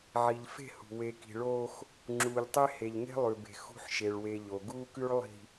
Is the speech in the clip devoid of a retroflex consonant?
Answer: no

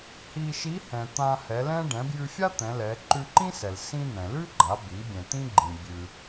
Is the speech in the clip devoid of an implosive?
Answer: yes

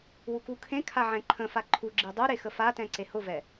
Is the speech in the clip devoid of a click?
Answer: no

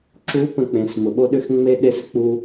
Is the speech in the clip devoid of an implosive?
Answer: no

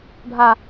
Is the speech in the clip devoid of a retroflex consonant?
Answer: no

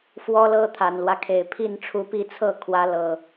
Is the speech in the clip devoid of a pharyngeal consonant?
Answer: yes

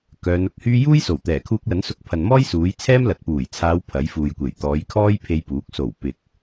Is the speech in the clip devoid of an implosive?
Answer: yes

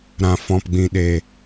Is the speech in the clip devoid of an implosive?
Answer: no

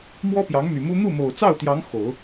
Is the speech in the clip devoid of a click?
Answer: yes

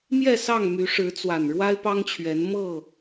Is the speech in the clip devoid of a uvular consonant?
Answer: yes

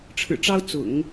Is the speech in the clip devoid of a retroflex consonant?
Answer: no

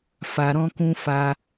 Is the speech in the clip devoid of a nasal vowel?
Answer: no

